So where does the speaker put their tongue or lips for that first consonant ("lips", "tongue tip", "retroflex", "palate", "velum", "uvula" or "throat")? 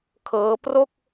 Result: velum